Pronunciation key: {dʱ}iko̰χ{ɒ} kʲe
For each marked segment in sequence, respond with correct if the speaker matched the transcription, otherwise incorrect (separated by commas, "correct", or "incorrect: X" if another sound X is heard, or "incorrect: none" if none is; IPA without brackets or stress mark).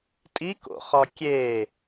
incorrect: tʼ, correct